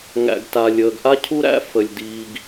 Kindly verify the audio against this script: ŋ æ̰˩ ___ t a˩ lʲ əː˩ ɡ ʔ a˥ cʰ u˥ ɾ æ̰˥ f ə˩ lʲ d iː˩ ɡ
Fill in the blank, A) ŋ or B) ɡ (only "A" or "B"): B